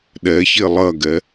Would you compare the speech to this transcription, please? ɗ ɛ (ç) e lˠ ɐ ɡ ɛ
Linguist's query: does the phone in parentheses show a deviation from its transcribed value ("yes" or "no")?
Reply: no